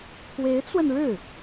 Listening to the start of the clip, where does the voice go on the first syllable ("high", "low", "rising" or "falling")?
rising